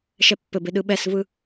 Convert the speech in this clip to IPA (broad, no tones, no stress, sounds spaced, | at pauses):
ʃ ɛ pː ɘ b e ɗ ɯ ɓ ɛ s v ɯ